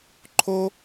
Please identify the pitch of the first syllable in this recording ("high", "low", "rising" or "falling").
high